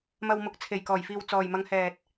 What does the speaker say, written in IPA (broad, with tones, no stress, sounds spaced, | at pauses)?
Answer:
m ɐ˨ w m ʊ˨˥ k̚ t͡sʰ e˨˩ j k ɔː˨˩ j f iː˨ w t͡s ɔː˨ j m ɐ˨˧ ŋ h ɛː˨ t̚